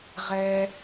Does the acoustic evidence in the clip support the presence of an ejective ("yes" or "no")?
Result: no